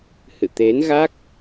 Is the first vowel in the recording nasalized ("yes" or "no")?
no